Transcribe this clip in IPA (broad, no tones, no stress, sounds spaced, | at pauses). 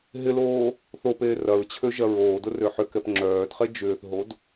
ɦ ɪ l oː | θ o p eː r ɐ ɹ t͡ɕʰ ø ʒ ɐ ɹ oː d ʊ r ø ħ ʏ k ɛ p ŋ͡ǁ œː d χ e d͡ʒ ʏː θ ɦ o d